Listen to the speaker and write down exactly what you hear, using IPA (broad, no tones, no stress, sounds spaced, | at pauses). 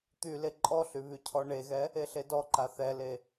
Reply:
t̪ y l e ǃʼ ɔ ɬ y β y cʰ ɔ ɳ e ɣ ɛ | e ɬ e d ɔ ǃ a θ ɛ l e